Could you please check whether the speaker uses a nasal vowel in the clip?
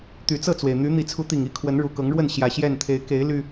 no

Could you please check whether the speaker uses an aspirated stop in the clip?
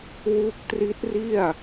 no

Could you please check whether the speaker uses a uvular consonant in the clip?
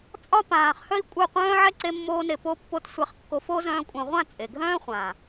yes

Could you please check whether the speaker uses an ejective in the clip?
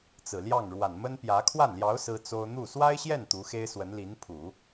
no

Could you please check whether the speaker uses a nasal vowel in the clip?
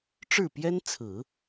no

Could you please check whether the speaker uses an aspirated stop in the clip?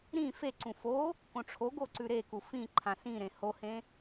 yes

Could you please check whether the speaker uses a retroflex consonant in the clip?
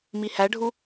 yes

